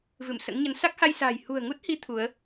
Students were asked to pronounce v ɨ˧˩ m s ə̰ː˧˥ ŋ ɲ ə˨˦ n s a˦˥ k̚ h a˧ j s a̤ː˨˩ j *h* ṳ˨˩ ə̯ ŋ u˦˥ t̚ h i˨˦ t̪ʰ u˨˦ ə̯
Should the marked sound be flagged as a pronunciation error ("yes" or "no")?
no